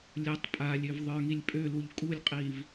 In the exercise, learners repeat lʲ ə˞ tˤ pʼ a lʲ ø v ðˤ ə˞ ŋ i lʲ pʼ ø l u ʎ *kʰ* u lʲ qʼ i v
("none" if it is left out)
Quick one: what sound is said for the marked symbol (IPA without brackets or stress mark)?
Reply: kʼ